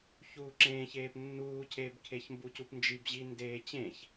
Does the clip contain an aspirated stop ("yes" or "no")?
yes